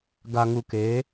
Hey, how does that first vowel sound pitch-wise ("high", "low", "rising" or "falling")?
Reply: low